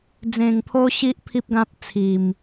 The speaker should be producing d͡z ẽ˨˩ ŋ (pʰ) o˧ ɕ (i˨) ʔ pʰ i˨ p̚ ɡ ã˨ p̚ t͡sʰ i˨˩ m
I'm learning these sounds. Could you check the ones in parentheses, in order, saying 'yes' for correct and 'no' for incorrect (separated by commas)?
yes, yes